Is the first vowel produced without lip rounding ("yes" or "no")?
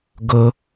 no